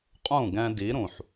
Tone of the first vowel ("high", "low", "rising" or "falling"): falling